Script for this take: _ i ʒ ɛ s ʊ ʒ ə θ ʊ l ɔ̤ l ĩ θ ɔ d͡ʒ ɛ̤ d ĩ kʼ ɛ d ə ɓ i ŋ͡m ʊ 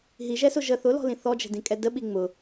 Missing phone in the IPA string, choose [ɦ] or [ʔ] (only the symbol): ɦ